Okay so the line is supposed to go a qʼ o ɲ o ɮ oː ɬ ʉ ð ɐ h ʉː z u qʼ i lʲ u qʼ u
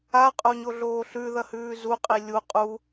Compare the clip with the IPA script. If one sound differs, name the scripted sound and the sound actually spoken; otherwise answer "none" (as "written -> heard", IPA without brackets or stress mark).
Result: none